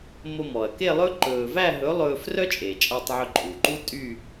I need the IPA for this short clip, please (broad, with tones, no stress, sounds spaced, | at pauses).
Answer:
m o˧ m ɔ˩ ɐ̯ k e˥˧ lˠ ɵ˥ ǃ ɵː˧ v æ˥˧ ɦ ɵ˨˥ lˠ ɵː˧ f r œ˥ t͡ʃʼ e˩ t͡ʃʼ ɑ˧ tˤ ʕ ɵ˧ ǃʼ u˩ ǃ u˥ tʼ y˥˧